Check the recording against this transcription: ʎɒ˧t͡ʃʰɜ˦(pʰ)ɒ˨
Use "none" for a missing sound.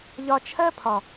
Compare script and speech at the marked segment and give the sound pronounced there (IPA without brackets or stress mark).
pʰ